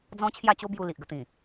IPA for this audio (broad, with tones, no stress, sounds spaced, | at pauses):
d͡z ɔ̃˦ t͡ɕʰ j a˥˧ t͡ɕ o˦ b j u˧ l i˨ ʔ ɡ ə˧ t̪ ĩ˨˩